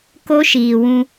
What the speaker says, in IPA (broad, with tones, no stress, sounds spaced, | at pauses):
k o˦ ʃ iː˨ w ũ˧